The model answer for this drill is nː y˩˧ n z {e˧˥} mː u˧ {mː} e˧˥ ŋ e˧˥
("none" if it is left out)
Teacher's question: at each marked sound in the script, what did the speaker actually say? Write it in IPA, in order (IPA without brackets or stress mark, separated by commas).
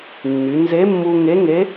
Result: e˧˥, ŋ